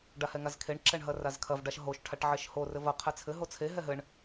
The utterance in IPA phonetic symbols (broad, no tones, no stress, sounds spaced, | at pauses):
ɖ a h ɛ ŋ a z kʰ e ɳ ǁ ɛ ɳ ɦ ɐ r a z kʰ ɐ v ɖ a ʃ ɦ o ʃ ʈʰ a ʈ ʕ e ʃ h o r ɘ v ɐ qʰ ɛ t͡sʰ ɘ ɦ o t͡sʰ e ɦ ɛ ɦ ɘ ɳ